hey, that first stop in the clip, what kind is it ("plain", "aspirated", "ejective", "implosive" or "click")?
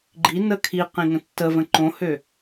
click